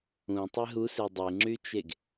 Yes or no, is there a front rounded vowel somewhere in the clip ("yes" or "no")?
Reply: yes